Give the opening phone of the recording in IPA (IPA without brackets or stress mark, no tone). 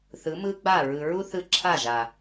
θ